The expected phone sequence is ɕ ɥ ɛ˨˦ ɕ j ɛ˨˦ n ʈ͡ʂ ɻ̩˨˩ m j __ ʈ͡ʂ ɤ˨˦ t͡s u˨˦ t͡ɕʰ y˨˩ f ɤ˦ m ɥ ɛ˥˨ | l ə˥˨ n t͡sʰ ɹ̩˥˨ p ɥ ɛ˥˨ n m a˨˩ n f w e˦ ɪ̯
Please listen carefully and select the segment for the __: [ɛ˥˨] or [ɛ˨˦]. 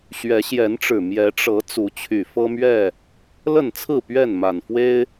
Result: ɛ˨˦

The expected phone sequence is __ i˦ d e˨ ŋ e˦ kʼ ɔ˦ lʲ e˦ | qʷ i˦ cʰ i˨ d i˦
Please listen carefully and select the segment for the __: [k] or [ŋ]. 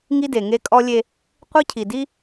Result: ŋ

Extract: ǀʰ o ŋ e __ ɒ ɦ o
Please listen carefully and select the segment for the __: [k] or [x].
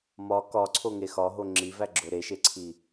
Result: x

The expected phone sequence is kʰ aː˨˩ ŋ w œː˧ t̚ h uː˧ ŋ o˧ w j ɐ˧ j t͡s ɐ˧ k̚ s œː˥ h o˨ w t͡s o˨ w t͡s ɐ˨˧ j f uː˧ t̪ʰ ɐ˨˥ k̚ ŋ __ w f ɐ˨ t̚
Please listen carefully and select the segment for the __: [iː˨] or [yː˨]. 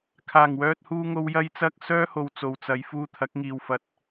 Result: iː˨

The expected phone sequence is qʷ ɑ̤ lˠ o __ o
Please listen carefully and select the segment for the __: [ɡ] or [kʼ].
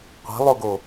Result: ɡ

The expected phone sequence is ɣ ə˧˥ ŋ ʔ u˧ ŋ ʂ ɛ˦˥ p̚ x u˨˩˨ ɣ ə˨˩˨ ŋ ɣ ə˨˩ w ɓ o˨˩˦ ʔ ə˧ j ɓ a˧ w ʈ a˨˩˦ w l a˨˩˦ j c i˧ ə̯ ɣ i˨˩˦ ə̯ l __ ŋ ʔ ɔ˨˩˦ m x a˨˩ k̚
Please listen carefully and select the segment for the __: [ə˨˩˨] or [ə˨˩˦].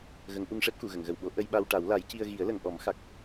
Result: ə˨˩˨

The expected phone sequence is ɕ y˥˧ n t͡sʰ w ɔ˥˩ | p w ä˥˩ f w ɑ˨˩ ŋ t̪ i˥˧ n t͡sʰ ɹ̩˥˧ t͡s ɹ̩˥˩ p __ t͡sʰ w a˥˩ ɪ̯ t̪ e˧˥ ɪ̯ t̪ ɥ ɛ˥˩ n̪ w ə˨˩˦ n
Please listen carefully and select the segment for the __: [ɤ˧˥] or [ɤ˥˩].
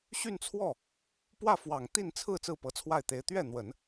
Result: ɤ˧˥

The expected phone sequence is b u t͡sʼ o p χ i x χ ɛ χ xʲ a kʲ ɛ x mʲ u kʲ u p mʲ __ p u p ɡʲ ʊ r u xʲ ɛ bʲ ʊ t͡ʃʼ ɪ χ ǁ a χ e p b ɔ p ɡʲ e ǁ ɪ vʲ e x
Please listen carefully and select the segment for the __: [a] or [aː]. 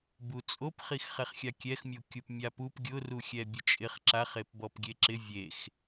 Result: a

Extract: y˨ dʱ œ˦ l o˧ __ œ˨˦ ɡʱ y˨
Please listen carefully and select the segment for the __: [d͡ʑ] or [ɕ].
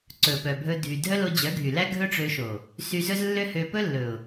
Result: d͡ʑ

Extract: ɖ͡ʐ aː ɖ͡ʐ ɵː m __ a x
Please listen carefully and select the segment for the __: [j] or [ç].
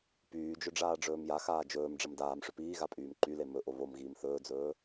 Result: j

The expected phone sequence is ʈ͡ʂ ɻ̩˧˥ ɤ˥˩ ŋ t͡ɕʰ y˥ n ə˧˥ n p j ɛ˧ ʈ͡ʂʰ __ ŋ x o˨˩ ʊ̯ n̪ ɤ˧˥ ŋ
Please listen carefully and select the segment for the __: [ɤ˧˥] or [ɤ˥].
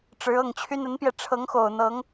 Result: ɤ˧˥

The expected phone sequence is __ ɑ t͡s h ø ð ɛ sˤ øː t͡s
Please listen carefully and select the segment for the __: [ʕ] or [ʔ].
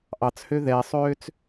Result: ʔ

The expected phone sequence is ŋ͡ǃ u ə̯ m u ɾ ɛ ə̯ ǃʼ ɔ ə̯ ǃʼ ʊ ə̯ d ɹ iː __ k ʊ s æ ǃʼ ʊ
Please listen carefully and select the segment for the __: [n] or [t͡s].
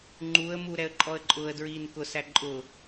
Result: n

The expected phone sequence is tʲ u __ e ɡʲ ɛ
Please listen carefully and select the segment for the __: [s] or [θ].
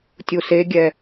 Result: s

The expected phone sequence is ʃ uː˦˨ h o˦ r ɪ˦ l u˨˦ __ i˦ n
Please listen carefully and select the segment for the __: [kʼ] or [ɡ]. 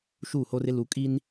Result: kʼ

